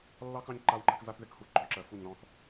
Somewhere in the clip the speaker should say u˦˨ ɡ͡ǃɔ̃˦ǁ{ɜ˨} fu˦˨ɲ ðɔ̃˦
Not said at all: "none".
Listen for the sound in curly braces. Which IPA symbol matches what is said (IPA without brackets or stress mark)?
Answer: ɜ˨